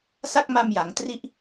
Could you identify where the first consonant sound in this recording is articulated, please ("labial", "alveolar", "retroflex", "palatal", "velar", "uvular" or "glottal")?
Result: alveolar